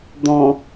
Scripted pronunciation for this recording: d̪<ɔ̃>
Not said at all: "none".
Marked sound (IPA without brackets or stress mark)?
ɔ̃